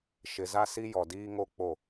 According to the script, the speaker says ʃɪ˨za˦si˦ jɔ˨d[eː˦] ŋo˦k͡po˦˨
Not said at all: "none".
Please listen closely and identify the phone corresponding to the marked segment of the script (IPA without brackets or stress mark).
iː˦